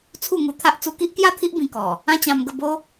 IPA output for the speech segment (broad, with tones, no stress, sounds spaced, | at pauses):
t͡sʰ u˥˧ ŋ u˧ t̪ʰ a˦ ʔ t͡s u˧ k i˦ ʔ k j a˥˧ t̪ʰ i˦ ʔ b ĩ˧ k ɔ˨˩ | ã˦ t͡ɕ ã˧ m ɡ ə˥˧ b o˦